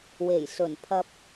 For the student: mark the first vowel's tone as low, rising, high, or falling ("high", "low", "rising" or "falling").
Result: low